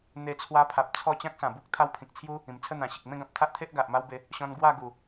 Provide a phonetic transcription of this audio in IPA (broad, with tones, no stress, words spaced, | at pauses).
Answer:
n̪e˧t͡sʰwa˧pʰa˨p̚ t͡sʰɔ˥˧ t͡ɕã˦k̚sã˨˩bu˦k̚ t̪ʰa˦wpʰĩ˨k̚t͡sʰju˦ | ĩ˨˩mt͡sʰə˥˧n̪ã˨˩ɕi˨k̚ mẽ˥˧ɡã˨p̚t̪ʰa˦ʔt̪ʰe˦ʔ ɡa˨ʔma˦wbe˨˦ | ɕɔ̃˧n ɡwa˥˧ɡu˨˩